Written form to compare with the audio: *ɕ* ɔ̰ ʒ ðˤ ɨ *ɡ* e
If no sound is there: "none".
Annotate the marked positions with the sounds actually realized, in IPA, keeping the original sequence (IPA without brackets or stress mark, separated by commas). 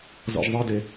z, d